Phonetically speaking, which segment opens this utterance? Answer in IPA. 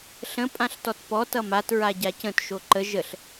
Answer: ɬ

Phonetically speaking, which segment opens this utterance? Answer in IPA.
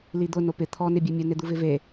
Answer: l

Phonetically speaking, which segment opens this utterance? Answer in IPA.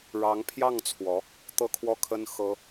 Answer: ɻ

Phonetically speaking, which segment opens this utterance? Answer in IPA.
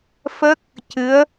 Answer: f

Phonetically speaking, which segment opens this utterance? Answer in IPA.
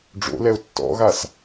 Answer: ɖ͡ʐ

